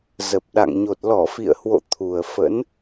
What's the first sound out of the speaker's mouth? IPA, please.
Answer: z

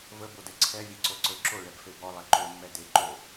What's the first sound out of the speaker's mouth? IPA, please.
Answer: v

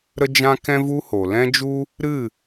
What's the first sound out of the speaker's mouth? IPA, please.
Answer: ɾ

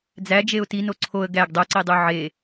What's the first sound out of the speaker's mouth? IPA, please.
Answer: d͡z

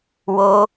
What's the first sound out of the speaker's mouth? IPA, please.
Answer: w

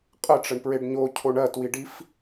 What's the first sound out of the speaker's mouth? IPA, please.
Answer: qʼ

